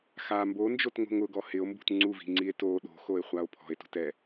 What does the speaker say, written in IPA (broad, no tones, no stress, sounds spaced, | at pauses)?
x a m b o n d͡ʒ o t ŋ o̤ ŋ ʊ ɡ ɔ h ɪ o̯ m b ṳ t ŋ͡ǀ u v i̤ ŋ͡ǀ i e̯ t o ɗ o̤ x o e̯ χʷ a o̯ pʰ ɔ̤ e̯ t ṳ t ɛ